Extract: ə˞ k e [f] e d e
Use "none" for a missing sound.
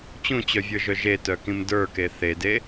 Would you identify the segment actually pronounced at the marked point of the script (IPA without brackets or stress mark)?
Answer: θ